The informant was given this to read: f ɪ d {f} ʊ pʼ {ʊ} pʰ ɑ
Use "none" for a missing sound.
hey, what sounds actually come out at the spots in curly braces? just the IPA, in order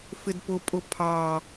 p, ʊ

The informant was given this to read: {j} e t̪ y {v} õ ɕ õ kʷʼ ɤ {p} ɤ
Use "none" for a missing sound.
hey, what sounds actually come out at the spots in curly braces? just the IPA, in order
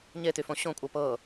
ɲ, f, p

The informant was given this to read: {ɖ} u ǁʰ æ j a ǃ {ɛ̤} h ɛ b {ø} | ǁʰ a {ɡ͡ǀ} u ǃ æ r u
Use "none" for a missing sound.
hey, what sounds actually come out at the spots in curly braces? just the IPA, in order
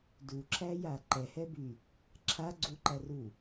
d, ɛ, y, ɡ͡ǀ

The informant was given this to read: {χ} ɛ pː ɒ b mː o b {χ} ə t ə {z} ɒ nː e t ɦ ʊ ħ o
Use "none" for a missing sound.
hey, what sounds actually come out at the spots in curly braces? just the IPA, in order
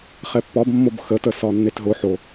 χ, x, s

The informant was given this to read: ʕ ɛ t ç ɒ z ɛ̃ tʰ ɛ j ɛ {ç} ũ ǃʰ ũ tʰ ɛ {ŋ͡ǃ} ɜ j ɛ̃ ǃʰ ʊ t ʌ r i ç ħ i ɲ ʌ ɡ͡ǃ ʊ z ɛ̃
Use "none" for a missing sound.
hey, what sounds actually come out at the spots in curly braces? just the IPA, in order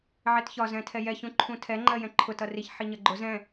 ç, ŋ͡ǃ

